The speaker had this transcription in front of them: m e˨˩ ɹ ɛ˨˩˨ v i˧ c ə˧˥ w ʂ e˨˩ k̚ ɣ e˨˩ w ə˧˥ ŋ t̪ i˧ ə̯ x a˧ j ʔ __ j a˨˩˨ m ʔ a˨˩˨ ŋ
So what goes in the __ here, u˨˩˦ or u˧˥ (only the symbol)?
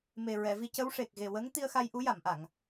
u˧˥